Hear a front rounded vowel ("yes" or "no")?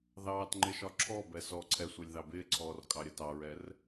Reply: no